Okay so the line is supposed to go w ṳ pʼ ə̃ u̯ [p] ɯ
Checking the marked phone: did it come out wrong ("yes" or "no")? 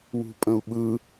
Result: yes